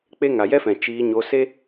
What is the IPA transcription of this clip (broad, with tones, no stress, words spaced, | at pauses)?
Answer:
k͡pe˦ ŋa˨jɛ˦fɛ̃˨ t͡ʃiː˧ɲo˧ se˦